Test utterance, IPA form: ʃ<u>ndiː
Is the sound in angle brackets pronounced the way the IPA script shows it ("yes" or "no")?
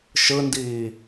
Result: no